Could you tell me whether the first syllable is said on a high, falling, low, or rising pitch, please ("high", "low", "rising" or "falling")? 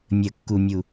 low